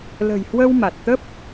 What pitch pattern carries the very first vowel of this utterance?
low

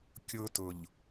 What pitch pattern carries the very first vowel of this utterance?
high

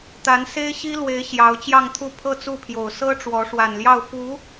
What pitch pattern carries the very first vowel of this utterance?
rising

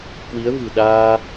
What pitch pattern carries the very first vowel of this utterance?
rising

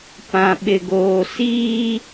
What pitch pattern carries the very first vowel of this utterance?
low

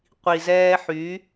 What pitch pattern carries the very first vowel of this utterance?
low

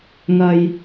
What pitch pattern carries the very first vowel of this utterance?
low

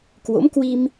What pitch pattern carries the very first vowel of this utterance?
rising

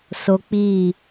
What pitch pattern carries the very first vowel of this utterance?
high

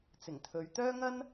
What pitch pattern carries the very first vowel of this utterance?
low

